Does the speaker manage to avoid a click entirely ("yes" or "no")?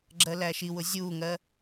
no